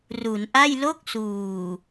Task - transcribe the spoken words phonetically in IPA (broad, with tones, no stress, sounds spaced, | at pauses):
r u˩˦ n ʔ a˥˩ j l o˥˩ k̚ s uː˨˩